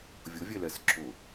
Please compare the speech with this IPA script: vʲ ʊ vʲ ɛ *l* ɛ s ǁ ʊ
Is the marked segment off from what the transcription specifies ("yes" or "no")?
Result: no